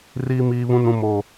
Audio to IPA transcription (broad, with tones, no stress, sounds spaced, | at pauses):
r iː˦ m iː˦ β ũ˦ n ũ˦ m o˦